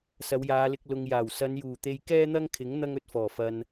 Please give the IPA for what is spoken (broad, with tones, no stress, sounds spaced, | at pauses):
s ɐ˨˧ w j aː˨˧ l ɪ˧ k̚ l ʊ˨ ŋ j aː˨˩ w s ɐ˨˧ n j uː˨˩ t̪ e˧ j k ɛː˥ n̪ ɐ˥ ŋ kʰ ɪ˨˥ ŋ n̪ ɐ˥ ŋ ɵ˧ t̚ f ɔː˨˩ f ɐ˨ n